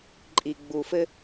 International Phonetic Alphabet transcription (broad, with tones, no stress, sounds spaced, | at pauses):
ǃʼ i˩ ɡ͡b u˩ f ɘ˧